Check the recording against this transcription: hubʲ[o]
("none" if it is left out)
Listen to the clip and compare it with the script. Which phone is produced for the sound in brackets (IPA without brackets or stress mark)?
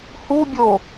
o